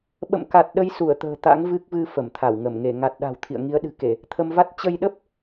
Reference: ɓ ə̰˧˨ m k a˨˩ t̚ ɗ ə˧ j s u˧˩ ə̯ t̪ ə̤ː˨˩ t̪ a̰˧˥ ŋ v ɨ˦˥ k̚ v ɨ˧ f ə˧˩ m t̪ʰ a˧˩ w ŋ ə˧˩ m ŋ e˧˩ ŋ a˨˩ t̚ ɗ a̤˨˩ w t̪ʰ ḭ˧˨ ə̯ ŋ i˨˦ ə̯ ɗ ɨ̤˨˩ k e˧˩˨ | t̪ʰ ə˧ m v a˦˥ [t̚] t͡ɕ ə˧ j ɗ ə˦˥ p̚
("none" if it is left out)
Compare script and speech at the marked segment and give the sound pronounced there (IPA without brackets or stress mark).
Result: t̚